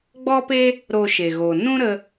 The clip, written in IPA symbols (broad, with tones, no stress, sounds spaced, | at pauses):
ɡ͡b ɔ˦ p e˦ | ɾ o˧ ʃ e˨ ɣ o˨ n ũ˦ ɾ ə˧